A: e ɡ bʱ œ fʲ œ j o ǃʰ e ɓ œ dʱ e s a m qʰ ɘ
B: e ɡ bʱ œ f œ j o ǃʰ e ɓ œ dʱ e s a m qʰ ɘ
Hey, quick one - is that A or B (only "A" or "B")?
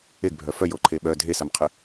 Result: B